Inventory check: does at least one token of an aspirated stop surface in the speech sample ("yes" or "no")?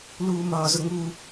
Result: no